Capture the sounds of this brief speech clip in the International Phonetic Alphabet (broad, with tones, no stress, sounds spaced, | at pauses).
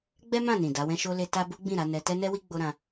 ɡ͡b ɛ˦ m ã˦˨ n ĩ˨ d a˨˦ w ɛ̃˦ ʃ o˦ l e˦ t a˦ b u˦ ɡ͡b ĩ˦˨ ɾ a˨˦ n ɛ˧ t ɛ˦ n ɛ˦ w i˦ ɡ͡b o˦ ɾ ã˧